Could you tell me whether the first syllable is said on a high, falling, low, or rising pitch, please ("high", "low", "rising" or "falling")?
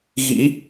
rising